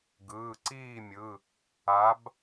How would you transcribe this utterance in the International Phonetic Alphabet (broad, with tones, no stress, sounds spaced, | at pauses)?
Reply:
ɡ ɯː˩˧˩ ǀ iː˥˨ mʲ ɯ˩˧˩ | a˨˥ b